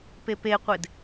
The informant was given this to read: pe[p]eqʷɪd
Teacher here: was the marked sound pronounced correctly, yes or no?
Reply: yes